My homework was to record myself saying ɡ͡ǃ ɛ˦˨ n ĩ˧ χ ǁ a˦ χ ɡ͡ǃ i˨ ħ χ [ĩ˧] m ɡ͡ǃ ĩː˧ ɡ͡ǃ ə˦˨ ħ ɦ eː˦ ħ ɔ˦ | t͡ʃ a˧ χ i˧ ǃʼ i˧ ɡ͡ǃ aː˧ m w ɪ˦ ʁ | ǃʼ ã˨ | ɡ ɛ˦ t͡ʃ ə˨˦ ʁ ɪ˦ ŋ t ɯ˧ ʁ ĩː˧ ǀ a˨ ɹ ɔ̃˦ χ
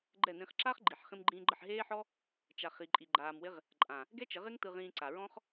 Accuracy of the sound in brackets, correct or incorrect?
correct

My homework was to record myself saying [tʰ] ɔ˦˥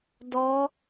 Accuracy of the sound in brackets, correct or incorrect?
incorrect: d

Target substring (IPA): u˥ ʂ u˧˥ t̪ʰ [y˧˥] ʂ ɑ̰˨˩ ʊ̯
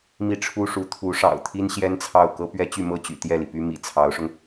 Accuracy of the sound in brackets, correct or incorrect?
incorrect: u˧˥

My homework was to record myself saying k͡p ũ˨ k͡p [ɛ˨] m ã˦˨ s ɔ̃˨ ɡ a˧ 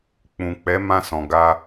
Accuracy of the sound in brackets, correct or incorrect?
incorrect: ɛ˨˦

